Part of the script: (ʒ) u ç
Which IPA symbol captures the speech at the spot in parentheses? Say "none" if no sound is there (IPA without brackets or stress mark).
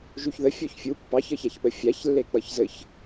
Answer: ʒ